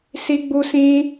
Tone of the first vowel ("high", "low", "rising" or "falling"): high